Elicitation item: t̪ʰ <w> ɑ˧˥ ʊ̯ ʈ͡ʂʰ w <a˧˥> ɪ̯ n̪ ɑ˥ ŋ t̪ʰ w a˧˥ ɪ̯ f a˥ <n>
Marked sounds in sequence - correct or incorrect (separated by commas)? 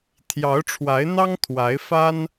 incorrect, correct, correct